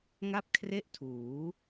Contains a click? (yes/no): no